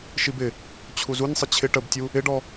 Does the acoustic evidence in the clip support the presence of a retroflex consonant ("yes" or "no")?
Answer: yes